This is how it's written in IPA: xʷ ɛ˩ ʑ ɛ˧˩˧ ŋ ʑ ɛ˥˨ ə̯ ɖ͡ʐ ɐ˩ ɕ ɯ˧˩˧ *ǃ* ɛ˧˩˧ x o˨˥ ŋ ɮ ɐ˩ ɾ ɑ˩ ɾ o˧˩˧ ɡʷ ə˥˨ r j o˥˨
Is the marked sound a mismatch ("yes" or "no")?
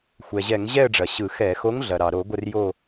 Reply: yes